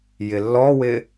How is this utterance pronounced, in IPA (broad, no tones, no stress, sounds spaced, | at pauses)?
j ɪ lː ɔ w ɪː